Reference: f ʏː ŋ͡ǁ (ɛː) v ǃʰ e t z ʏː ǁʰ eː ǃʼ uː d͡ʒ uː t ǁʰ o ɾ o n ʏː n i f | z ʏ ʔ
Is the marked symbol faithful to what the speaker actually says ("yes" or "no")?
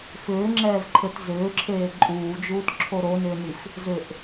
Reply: yes